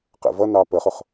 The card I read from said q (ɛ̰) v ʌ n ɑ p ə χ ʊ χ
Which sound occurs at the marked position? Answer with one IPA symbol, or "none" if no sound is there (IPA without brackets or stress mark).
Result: ɛ̰